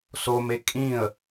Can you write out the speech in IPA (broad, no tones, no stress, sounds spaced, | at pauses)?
s o m e kʼ ĩ ə̯